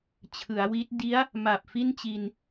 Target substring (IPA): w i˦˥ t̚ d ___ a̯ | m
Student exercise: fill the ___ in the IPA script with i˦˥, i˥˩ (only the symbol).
i˦˥